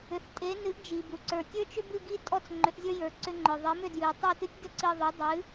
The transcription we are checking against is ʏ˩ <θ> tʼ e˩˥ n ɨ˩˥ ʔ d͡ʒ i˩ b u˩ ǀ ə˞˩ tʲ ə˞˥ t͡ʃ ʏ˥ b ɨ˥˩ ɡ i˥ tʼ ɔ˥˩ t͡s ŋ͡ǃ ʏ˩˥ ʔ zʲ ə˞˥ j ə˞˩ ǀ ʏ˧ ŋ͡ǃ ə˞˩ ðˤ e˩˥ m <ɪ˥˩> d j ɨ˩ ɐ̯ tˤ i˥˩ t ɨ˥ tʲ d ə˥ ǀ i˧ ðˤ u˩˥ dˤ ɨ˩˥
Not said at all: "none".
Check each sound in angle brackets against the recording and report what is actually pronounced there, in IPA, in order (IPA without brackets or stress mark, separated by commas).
θ, ʏ˥˩